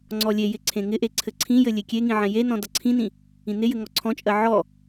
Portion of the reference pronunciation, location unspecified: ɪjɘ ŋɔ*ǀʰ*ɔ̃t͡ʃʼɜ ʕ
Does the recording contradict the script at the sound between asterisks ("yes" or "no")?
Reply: no